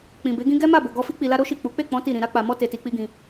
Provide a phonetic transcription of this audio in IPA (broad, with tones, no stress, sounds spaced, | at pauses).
k͡p ĩ˨ b e˨˦ ɡ ĩ˦ ɡ ɛ˦ m a˦˨ b o˨ ɡ ɔ˧ f i˦ k͡p i˧ l a˦ ɾ o˦ ʃ i˦˨ k͡p u˨˦ k͡p e˦˨ k͡p ɔ̃˨˦ t i˦˨ ɾ ĩ˧ ɾ a˦ k͡p a˧ m ɔ˦ t e˧ t i˧ k͡p i˦ ɡ ĩ˧